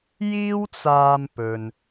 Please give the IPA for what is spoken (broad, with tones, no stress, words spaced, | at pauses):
jiː˥wt͡saː˧mpɵ˨n